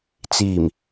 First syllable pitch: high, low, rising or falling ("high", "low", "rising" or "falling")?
low